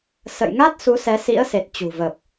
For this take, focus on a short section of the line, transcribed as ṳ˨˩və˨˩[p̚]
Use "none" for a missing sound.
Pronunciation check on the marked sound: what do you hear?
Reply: p̚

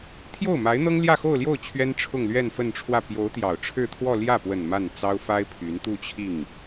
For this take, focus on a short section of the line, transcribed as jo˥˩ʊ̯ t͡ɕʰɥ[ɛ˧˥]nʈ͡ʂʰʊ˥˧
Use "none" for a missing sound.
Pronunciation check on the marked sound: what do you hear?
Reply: ɛ˥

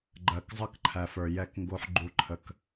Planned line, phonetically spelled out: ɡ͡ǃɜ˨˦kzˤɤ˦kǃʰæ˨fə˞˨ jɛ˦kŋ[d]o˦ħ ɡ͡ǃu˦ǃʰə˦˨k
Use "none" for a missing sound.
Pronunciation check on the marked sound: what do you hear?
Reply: ɡ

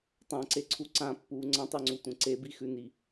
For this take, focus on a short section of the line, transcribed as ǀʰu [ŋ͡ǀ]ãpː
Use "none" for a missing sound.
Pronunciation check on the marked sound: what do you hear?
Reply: ǀ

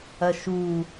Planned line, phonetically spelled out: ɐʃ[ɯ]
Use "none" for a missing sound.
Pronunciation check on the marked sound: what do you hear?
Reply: u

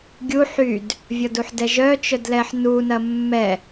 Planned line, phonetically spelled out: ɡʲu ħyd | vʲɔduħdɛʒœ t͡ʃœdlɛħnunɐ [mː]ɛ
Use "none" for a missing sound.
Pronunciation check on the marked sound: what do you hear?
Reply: mː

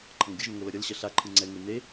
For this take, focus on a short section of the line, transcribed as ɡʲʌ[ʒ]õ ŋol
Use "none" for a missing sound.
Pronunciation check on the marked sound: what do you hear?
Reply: ʒ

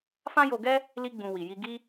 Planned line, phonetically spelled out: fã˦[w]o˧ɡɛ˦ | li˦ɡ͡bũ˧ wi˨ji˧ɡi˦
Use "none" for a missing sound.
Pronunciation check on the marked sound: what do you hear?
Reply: j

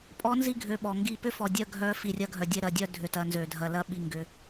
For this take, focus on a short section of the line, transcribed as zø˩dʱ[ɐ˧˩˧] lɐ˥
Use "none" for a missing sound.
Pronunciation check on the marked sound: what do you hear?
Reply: ɐ˩˧˩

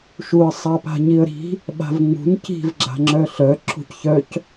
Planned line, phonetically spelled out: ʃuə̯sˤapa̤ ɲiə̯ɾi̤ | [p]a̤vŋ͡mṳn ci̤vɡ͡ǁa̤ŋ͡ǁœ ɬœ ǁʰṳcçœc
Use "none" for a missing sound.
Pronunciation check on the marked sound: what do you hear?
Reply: ɓ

